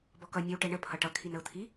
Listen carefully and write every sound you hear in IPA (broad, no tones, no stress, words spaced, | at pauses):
bɔkʌ nʲəw ʈɛɳə pʰʌʈʌ kʰinəʊ̯t̪ʰi